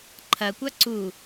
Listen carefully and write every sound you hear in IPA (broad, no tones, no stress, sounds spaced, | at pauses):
ǃʰ ɐ kʷ a ǀ u